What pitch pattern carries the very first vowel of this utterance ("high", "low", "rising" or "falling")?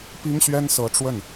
high